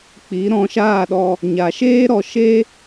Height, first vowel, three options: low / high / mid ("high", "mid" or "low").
high